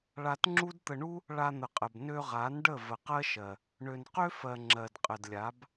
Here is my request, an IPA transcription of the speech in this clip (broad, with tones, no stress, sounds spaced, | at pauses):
ɭ a˧ t ŋ͡ǁ u˦ d t̪ ə˧ ɳ u˦ | ɭ a˧ n̪ ə˨ qʼ ə˨ b n ø˧ ʁ a˨˦ n ɖ ə˦˨ v ə˨ q ɜ˦ ʃ ɜ˨ | ɳ ø˨ n q ø˦ f ɜ˨ ŋ͡ǁ ɜ˨ d qʼ ə˨ d lʲ a˨˦ b